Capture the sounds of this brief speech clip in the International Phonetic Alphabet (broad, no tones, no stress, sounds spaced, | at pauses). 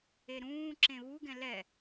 e ɾ ũː ǁ ẽ β u ɡ ɛ̃ l ɛ